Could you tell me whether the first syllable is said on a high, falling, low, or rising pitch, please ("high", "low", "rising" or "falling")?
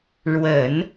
low